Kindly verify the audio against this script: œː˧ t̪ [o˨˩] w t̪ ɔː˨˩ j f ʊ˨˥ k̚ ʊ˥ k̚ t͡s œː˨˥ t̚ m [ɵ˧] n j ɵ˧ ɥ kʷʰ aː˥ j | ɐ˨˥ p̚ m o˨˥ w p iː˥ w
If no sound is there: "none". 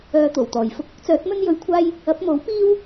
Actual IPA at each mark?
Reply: o˨˩, ɵ˥

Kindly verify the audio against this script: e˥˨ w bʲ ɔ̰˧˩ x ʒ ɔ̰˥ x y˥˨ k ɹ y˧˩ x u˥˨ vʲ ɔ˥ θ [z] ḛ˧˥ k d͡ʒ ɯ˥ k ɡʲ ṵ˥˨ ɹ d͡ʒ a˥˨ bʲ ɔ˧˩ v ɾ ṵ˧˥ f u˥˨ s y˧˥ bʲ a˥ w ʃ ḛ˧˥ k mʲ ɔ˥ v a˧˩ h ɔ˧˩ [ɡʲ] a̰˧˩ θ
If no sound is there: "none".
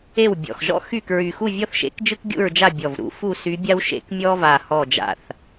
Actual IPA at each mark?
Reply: ʃ, d͡ʒ

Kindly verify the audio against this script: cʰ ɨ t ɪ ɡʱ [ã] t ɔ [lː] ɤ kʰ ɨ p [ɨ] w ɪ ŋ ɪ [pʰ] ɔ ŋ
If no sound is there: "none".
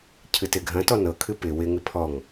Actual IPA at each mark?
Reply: ɐ̃, n, ɪ, pʰ

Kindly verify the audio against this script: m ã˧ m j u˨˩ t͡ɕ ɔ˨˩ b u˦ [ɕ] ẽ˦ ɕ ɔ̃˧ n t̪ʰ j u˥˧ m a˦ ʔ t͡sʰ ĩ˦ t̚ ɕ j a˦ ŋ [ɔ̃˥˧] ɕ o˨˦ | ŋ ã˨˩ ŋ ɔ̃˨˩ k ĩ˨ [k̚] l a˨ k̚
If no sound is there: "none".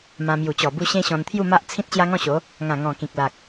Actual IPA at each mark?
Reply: ɕ, ɔ̃˥˧, k̚

